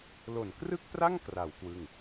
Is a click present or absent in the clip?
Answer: absent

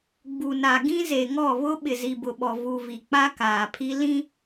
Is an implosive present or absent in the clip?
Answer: present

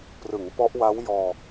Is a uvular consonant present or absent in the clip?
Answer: absent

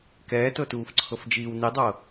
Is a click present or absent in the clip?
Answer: present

